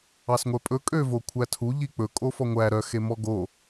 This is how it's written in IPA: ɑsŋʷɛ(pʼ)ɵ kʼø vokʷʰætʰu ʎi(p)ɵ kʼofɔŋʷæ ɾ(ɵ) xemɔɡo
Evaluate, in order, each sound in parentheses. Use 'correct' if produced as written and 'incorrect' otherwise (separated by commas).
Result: correct, incorrect, incorrect